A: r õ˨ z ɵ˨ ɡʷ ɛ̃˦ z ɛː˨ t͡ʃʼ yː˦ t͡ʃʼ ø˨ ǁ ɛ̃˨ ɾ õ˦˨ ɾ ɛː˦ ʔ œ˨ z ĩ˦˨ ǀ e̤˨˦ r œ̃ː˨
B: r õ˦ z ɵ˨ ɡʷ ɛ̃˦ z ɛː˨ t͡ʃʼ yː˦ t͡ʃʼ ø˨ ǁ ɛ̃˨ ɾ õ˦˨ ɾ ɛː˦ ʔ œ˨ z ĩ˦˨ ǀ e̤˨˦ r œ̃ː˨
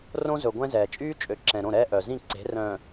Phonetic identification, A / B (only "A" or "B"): B